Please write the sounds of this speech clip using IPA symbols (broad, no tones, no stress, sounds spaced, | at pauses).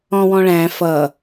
ɔ̃ w ɔ̃ ɭ æ̃ f ʌ